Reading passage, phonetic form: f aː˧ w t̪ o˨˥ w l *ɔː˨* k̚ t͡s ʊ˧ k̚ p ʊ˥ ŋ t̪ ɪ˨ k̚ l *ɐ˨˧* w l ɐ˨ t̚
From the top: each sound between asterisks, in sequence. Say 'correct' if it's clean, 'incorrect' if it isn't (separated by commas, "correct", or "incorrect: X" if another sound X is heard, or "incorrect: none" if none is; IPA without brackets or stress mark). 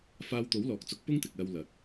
correct, incorrect: ɐ˧